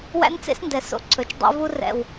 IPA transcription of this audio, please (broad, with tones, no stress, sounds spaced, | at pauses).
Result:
w æ̰˦ n t͡s ḛ˦ s n d ɛ˨ s o̰˦ ǀʰ ɵ˨ t͡ʃ dˤ ḛ˦ v u˦ r ɛ̰˨ w